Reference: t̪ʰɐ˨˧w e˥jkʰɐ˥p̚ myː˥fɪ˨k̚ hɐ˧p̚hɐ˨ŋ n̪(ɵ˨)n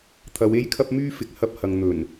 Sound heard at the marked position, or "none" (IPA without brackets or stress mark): ɵ˨˩